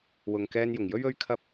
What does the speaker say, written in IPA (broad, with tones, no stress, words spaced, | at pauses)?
wʊ˨ŋkɛː˧njʊ˨˩ŋjɵ˥ɥ ɵ˧ɥkʰɐ˧p̚